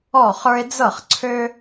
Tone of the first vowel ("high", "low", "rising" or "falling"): falling